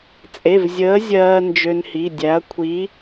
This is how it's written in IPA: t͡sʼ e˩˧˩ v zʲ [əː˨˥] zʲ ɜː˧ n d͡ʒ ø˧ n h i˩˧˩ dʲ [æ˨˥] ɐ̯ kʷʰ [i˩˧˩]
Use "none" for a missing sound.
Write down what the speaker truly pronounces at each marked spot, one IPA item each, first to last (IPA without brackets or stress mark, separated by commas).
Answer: əː˨˥, æ˨˥, i˨˥